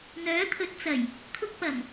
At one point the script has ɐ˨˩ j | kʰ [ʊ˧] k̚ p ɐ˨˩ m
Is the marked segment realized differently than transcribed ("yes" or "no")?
no